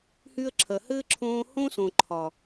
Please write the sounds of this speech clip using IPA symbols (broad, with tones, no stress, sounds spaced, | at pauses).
h y˧ ə̯ ǁʰ ɐ˨ h ɘː˦ ǁʰ õː˧ h õ˦ s õ˨ ǃʰ ɒ˨